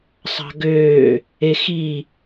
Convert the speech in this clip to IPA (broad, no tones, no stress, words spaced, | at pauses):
sˤɑ̤ɡøː | exi